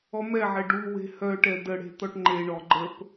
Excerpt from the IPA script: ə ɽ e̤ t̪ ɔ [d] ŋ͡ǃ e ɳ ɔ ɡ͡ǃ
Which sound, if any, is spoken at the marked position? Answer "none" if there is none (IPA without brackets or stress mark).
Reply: ʈ